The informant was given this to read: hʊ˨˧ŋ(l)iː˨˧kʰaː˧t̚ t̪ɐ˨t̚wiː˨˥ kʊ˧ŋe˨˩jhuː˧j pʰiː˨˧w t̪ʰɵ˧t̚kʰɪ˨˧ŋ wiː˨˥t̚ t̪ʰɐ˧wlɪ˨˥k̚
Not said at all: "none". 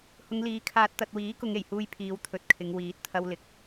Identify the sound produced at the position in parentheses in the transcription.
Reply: l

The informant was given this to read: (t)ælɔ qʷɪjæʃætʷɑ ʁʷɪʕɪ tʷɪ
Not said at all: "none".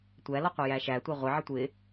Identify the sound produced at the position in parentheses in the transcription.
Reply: tʷ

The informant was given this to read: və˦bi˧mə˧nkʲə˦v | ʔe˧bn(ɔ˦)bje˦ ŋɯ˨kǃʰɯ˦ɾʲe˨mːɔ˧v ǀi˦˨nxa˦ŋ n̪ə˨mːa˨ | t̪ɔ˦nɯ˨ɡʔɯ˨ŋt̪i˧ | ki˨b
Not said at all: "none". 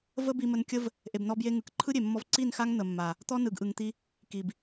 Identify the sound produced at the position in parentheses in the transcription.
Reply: ɔ˦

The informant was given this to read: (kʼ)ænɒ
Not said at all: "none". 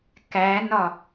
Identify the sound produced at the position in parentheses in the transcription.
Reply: k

